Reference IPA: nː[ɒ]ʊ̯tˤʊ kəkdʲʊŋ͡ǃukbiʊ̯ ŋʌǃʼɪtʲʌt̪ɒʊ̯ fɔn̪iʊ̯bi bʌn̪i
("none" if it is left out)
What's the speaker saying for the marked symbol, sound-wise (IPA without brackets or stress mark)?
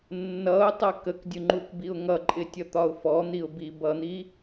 ʌ